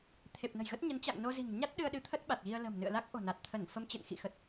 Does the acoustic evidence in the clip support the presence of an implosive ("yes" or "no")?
yes